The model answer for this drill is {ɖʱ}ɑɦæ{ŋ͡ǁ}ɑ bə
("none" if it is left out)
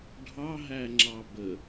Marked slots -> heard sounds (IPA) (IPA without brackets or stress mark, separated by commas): ɖʱ, ŋ͡ǁ